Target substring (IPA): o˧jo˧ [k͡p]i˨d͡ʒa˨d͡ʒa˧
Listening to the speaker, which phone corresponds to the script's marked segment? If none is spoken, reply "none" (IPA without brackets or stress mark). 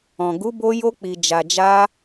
k͡p